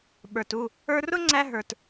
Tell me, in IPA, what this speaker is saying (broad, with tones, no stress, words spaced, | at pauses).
ɓə˞˨tu˦˨ | ə˞˧rʊ˦ŋ͡ǀæ˧ ɦə˞˨t